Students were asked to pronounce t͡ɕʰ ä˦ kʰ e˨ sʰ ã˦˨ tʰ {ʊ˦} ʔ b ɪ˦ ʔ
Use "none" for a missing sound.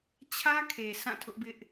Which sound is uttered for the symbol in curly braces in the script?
ʊ˦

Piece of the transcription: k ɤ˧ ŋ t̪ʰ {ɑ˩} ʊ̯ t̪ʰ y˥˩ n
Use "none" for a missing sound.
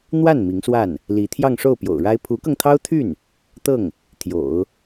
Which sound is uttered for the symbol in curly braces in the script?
ɑ˥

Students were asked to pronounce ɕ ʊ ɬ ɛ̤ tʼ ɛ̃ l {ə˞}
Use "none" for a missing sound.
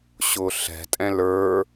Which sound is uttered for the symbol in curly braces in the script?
ə˞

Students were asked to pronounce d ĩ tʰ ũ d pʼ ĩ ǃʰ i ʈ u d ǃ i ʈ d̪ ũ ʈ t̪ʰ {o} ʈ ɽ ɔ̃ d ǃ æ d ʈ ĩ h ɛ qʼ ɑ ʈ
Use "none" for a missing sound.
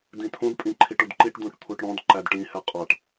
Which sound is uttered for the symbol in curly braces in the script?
u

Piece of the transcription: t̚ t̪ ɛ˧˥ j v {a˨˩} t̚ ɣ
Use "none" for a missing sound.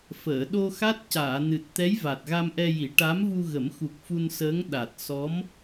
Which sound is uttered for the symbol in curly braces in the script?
a˨˩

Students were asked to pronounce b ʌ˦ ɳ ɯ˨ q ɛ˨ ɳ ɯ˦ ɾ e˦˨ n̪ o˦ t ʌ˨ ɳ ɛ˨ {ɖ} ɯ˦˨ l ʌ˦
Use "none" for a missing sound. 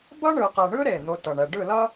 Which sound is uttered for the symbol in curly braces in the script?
ɖ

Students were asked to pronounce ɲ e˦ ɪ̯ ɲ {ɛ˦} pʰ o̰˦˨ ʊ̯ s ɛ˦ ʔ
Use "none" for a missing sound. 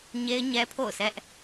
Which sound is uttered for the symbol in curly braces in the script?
ɛ˦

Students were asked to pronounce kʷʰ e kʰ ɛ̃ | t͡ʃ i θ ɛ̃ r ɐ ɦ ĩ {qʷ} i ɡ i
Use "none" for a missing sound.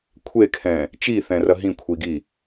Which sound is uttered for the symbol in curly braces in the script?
kʷʰ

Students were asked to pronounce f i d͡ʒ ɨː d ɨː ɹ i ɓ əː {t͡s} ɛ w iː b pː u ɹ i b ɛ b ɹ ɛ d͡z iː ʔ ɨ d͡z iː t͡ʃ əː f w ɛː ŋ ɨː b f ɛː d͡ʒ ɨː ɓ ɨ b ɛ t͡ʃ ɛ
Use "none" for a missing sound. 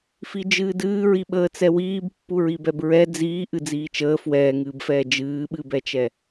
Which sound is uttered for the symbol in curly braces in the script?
t͡s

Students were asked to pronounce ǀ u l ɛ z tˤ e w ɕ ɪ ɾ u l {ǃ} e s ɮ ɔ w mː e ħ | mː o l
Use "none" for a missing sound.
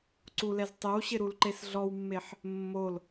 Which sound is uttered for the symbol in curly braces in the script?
ǃ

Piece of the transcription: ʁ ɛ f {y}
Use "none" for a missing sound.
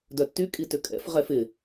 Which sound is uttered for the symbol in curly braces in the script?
ɪ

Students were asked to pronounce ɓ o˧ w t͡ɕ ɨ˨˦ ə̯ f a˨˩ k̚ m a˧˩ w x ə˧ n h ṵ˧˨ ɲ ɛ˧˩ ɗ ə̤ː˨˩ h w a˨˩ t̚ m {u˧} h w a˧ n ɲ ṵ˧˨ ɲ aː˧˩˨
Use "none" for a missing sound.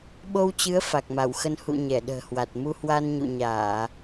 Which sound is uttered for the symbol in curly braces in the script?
u˧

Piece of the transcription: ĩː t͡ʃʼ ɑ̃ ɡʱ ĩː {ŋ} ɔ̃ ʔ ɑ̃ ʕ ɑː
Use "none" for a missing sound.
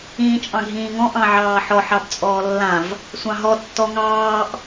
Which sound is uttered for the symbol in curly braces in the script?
ŋ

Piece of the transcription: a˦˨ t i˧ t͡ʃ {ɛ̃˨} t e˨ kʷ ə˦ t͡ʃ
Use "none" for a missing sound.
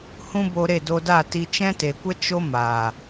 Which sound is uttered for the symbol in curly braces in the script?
ɛ̃˦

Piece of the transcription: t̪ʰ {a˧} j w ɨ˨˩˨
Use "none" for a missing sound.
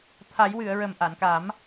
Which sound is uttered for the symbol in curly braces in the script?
a˨˩˦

